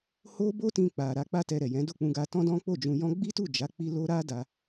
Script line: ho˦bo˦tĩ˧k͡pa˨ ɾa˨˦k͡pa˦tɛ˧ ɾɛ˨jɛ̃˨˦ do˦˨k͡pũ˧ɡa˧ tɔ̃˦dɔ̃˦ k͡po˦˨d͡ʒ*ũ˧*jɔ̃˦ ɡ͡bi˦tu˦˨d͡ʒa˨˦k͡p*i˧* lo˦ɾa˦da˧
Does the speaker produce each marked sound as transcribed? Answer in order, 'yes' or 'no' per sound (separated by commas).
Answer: yes, yes